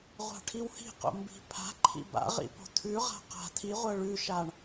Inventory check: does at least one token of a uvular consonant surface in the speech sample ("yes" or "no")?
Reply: yes